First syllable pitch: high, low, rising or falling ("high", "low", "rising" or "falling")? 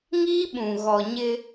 high